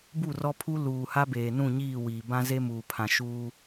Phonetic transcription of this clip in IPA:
bu˦˨rɔ˦pʰu˦ luː˨ha˦ beː˨nũ˦˨ɲiː˦˨ wiː˨bã˦ ze˦muː˨pʰã˨ ʃuː˦

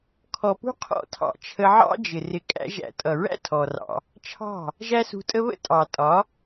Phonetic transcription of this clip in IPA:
kʰɔ˨pṳ˦ qʰɔ̰˦˨tʰɑ̰˧ t͡ʃʰə˧ʕɑ̰˦d͡ʒɪ˨ rɪ˧ kʼæ̰˦ʒæ̰˧ tʼʌ˨ɹæ̰˦ tʰɔ˨rɑ̰˧ | t͡ʃʰɑ̤˦˨ | ʒæ˦sṳ˧tʼə˦ βə̰˦tʼɑ˨tʼɒ˨˦

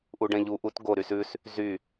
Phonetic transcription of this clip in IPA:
ʔuɖɛ̃ʎu ʔut ɡo ɾysʉs | zy

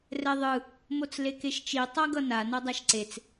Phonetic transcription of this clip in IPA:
rɛðˤɯ | mot͡slekeʃt͡ʃi tˤaɡʌna nʌdˤaʃǀet͡s

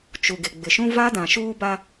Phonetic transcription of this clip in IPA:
t͡ʃu˨ɡɪ˨ɡ͡bɪ˨ʃũ˦ va˦dã˨ ʃuː˦ba˦

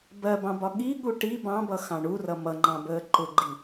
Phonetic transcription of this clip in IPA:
bɜbɑ̃bɒ ɠiɠu ʈi bɑ̃bʌxɑ̃ ɳurʌ mʌŋ͡ǃɑ̃bəː ǃʊɡ͡ǃi

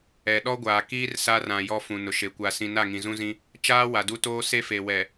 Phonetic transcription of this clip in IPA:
ɛ˨ɗɔ˦ɡʷaː˨ kiː˦r sa˦rã˨jɔ˦ fũ˨nʊ˨ʃe˨ kʷa˨sĩ˨ na˦˨ŋĩ˨zũ˦zĩ˦ | t͡ʃaː˦ wa˨du˦toː˦ se˦fe˨wɛ˨

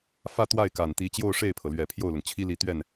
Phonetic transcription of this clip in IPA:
fä˥˧ t̪wa˥˩ɪ̯ka˨˩nt̪i˧˥ t͡ɕjo˥˧ʊ̯ʂe˥˩ɪ̯pʰɤ˩lɥɛ˨˩ pʰjo˥˩ʊ̯lʊ˩ŋt͡ɕʰi˥ li˥˧t̪ɥɛ˥˩n

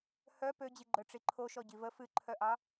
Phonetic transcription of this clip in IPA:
hœ pød͡ʑiɡ͡ǃœ ʈ͡ʂiǃʰoʃɔ ɟivə fɨǃʰœʔɑ

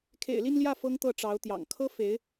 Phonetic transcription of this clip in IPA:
kʰḛ˨˩ɪ̯li˥˧nljä˥˩ fɤ˥ŋt̪ɤ˥˩ʈ͡ʂɑ˧˥ʊ̯t̪jɑ̰˨˩ŋ kʰɤ˥fe˧˥ɪ̯

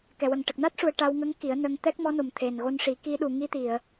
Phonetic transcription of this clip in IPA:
kɛ˨˩˨wə˨˩ŋ ʈə˨˩k̚na˦˥t̚ʂu˨˩ə̯ ʈa˧wŋə˧˥ŋ ki˨˩˦ə̯nə˧ŋ t̪ɛ˦˥k̚mɔ˧˥no˨˩m t̪ʰe˨˩nɣo˧nʂi˨˩˦ ki˧˥ɗu˨˩˨ ŋi˧t̪i˨˩˨ə̯

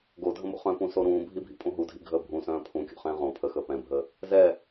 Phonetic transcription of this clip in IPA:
ɡodʱə̃mo̰ χœ̃pũso ɾũːbʱibʱḭpʼũ ɦudʱḭɡʱəː bʱũsœ̃ː pʰũkʲo̰χɛ̃ː ʁõ pʰəxəː pɛ̃bʱəː | zɛ

